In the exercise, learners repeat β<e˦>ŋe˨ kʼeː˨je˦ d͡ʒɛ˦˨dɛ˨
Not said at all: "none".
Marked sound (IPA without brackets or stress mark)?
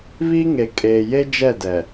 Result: i˦